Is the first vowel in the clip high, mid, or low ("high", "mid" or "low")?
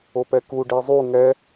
mid